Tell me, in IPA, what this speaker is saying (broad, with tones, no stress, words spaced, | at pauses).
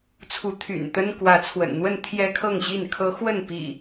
t͡sʰu˨˦t̪ʰy̰˨˩nt̪ə˦n kwä˨˦t͡sʰwə̰˨˩nn̪wə˥˨n t̪ʰjɛ˦kʰɤ˥˨ŋɕi˥˨nkʰɤ˦ xwə˥˨npḭ˨˩